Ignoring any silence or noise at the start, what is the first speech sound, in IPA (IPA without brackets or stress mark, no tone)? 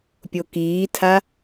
pʲ